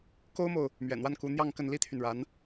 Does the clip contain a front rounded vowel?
yes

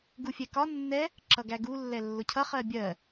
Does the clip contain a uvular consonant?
yes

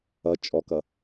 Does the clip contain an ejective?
yes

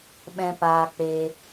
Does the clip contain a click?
no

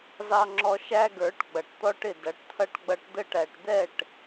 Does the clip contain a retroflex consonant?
yes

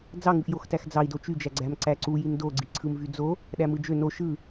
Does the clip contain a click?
yes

